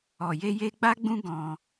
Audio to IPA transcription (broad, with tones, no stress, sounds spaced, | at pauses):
ɔ˨ j e˧ j e˧ ɡ͡b a˦ ɡ͡b ũ˦ ɡ ɔ̃˧